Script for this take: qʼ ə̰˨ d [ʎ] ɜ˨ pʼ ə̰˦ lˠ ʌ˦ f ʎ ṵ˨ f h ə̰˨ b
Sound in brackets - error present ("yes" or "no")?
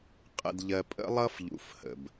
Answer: no